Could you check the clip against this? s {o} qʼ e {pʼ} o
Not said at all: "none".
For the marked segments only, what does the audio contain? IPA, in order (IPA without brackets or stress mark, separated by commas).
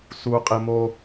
u, m